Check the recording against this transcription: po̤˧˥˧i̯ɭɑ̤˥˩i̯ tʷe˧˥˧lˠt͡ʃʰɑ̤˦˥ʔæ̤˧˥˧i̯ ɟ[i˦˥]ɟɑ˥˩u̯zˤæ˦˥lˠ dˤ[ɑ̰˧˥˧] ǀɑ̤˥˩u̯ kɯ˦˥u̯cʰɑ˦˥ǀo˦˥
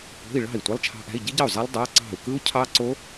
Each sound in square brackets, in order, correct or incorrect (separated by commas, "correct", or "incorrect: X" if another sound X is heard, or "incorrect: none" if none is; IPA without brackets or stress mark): correct, incorrect: ɑ˧˥˧